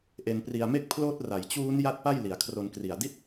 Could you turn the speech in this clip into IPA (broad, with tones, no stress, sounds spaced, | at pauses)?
ʔ e˧ n p r i˧ a̯ m e˥˩ k̚ pʰ l oː˦˥ t̚ r a˩˦ j t͡ɕ uː˦˥ n j a˥˩ t̚ p a˥˩ j l i˩˦ a̯ kʰ r o˧ n k r i˨˩ a̯ d i˥˩ t̚